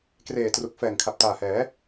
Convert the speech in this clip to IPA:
k r eː˨˩ t r u˨˩ k̚ f ɛː˨˩ ŋ kʰ a˨˩ p̚ t aː˨˩ h ɛː˩˦

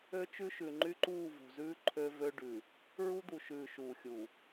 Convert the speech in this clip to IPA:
ø˦ t͡ʃ ʉ˦ ʃ ʉ˨ ŋ͡ǃ y˦ ǃ uː˦˨ v ṳ˨ z ʉː˦ ǃʰ ø˦ v ø˦ ɖ ʉ˨ | ɹ u˦ d̪ u˨ ʃ ʉː˨ ʃ uː˨ xʲ uː˨

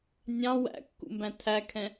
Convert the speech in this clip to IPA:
nʲ ɑ̃ w æ̰ kː ṵ m b æ̃ tʰ æ kʰ ɛ̃

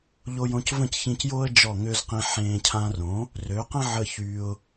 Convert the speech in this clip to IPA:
ʎ o˧ j õ˧ c v ə̃˥˩ c ç ĩ˧ c j oː˥ ə̯ d͡ʒ ɔ˥˩ ŋ ø˥ z q ĩ˧ ħ ẽː˧ cʰ ã˧ r õ˩˥ | r ø˩˥ q ə̃˥ ʕ ə˥˩ ç y˧ ʊ̯

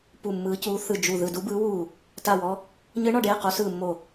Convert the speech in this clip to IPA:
p u˦˨ mː ɯː˧˥ c uː˧˥ θ ɯ˦˨ d͡ʒ u˦˨ ð ɯ˦˨ d u˧˥ b ɯː˧˥ w uː˦˨ | t a˦˨ w ɔ˧˥ | ɲ ɯ˧˥ ɳ ɔ˦˨ ɖ eː˦˨ q o˧˥ s ɯː˦˨ mː o˦˨

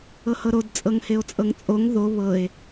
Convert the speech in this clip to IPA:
ɤ h ɤ ɾ o d t͡sʼ ɤ ŋ h e o̯ t͡sʼ ɤ ŋ t͡sʼ o ŋ ð o β ɤ e̯

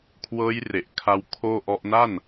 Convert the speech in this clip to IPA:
kʰ w ɤː˦˥ j r e˨˩ ʔ kʰ a˧ w kʰ oː˥˩ ʔ ɔ˦˥ ʔ n a˥˩ n

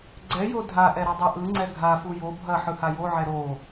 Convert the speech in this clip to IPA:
ɡ͡ǀ ɛ j o dʱ a ʔ ɛ ɾ ɐ dˤ ɛ ʔ ɯ ŋ͡ǀ ɛ ɡʱ a f u j o bʱ ɐ ħ ɯ h a j o ʕ ɛ ɾ o

